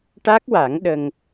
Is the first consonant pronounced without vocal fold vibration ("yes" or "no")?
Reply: yes